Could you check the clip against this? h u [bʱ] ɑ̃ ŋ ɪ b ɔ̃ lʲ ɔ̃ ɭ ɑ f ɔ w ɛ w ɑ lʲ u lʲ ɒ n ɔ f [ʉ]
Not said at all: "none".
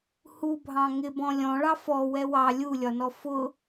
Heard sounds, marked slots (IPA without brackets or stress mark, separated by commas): bʱ, ʊ